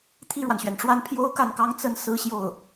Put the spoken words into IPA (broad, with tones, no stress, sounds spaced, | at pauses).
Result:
t̪ʰ i˥˩ ɻ w a˩ n ɕ ɥ ɛ˩ n ʈ͡ʂ w a˥˩ n pʰ j o˥ ʊ̯ k a˥˩ n k ɑ˥ ŋ t͡s ə˥˧ n s ɹ̩˥˧ ɕ j o˥˩ ʊ̯